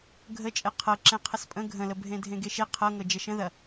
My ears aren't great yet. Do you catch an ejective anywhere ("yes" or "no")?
yes